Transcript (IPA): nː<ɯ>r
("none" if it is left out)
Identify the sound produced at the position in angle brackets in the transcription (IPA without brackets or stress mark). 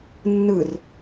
ɯ